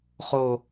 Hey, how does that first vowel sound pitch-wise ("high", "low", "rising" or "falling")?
low